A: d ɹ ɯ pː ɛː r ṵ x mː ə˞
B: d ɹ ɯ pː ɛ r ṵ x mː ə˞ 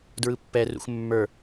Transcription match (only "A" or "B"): B